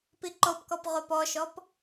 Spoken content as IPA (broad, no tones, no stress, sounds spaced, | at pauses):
p i ǃ o p k ɔ p ʁ o p ɔ ʃ ɔ p